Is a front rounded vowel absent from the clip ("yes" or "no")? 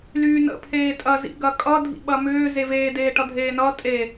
no